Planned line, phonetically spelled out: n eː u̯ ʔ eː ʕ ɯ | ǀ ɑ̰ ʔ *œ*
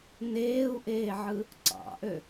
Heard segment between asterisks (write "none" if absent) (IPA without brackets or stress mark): ø